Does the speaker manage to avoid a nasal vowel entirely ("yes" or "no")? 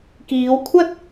yes